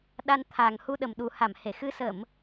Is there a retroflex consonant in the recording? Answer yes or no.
no